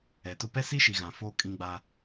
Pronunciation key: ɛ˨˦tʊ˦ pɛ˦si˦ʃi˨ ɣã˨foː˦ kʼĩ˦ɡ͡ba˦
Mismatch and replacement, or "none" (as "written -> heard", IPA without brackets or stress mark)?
none